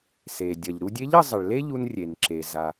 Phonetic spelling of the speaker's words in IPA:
se˩dʲɐ˩ʎ ɾu˧dʲe˧˥ʎ ə˩˧ zˤə˩ɭle˥ʎu˧n rʲe˩nǁe˩ za˩

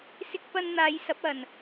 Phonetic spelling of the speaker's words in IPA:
sɪ˧k̚pɐ˧nn̪aː˨˧j sɐ˨˥p̚ɐ˨n

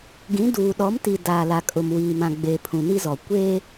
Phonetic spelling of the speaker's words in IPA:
ɡĩ˨˦duː˨ ɗɔ˨˦mti˨ daː˨la˨kʼʊ˨m wiː˨mã˨ ɡ͡be˨ pʰũ˨ni˦zɔ˨ kʷeː˦

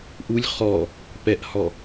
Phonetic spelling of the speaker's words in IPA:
ʔulʲ χɔ | pɛʔhɔ

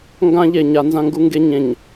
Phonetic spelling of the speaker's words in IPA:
ŋɡãː˦ʎeː˨ɲa˨˦ nzã˦ŋɡu˦ŋɡe˦ ɲẽ˨ɲ

